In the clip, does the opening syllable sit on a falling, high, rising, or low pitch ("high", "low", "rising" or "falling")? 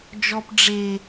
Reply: high